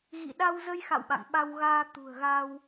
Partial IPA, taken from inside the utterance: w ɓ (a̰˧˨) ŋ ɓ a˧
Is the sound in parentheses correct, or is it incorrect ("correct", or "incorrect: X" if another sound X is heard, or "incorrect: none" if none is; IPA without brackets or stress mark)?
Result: correct